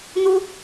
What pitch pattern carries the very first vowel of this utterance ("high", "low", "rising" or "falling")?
high